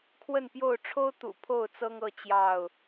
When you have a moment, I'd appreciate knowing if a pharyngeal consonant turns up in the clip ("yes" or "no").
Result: no